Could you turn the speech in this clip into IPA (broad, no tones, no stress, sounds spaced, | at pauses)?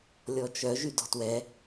lʲ ɔ t͡ʃ œ ʒ y d ɔ̤ t w ɛ